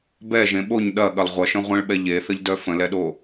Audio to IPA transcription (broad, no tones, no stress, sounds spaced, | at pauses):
b ɛ ʒ ẽ ɓ o ɲ ɗ ɐ ɠ ɐ lˠ ʁʷ ɐ ʃ ə̃ ʁʷ ẽ ɭ ɓ ɛ ʎ e θ ə ʎ d œ f ə̃ l ɛ ɗ o